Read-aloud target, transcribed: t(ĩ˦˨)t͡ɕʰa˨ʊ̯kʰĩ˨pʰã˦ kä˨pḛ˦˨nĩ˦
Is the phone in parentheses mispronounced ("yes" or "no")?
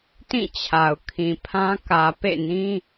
no